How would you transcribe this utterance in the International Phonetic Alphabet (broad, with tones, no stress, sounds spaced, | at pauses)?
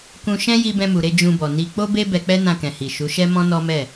k ũ˧ ʃ ɛ̃˦ j i˧ b ɛ̃˧ m u˨ ɾ e˧ d͡ʒ ũ˧ b ɔ˨ n i˧ k͡p o˦ b e˦ b ɛ˧ k͡p ɛ˦ n ã˧ k ɛ̃˨ h i˨ ʃ u˨˦ ʃ ɛ˦ m ɔ̃˦ n ɔ˦ m ɛ˦˨